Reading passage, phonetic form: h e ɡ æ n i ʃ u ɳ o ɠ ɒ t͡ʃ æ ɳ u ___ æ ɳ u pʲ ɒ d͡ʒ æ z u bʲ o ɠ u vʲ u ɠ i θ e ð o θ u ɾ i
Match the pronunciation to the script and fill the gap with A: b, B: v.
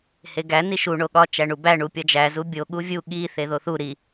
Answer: A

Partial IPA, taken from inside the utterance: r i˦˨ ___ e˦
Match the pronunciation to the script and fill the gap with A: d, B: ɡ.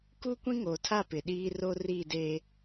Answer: A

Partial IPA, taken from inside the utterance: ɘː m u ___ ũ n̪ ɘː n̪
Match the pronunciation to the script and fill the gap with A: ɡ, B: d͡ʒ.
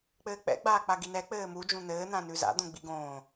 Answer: B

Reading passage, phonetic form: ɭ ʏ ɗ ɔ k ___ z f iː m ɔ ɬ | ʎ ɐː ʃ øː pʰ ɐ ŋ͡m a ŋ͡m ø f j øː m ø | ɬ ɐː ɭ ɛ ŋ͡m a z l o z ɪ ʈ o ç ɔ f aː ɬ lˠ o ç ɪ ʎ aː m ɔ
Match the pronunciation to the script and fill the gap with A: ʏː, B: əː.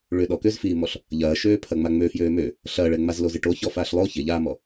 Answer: A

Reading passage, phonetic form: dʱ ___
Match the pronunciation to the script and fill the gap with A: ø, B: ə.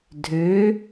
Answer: A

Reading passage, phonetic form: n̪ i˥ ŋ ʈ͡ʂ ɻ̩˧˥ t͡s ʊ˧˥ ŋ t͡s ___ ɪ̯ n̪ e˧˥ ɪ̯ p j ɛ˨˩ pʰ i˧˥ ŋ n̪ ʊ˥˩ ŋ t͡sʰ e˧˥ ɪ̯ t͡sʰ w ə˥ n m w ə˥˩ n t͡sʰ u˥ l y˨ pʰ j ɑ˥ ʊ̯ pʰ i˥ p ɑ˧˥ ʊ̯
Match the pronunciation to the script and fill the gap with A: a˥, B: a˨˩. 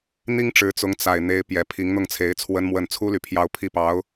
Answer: B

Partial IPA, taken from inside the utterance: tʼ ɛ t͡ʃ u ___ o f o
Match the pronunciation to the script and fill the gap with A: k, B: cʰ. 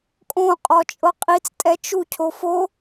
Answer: B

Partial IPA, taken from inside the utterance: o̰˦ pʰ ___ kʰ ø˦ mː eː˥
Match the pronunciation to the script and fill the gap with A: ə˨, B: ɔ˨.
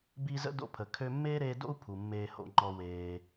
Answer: A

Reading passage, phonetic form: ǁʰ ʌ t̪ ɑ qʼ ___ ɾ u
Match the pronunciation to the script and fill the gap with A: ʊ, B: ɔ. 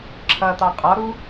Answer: B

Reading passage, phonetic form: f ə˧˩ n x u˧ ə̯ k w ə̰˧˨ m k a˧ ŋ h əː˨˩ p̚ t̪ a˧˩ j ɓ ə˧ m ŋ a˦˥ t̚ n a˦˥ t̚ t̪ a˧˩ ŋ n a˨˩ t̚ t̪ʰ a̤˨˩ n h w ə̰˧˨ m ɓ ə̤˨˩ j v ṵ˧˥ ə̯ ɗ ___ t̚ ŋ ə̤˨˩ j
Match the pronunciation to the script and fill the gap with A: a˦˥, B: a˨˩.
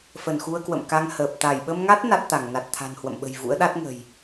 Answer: A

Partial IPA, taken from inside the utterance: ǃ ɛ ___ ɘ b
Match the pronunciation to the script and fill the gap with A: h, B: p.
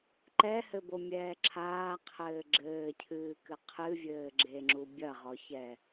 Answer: A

